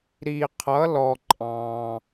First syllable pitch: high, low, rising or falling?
low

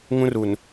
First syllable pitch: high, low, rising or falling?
high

